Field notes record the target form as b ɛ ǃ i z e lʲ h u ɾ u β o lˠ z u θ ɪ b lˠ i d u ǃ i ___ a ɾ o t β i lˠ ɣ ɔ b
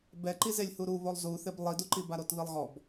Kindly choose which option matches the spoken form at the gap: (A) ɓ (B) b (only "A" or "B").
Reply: B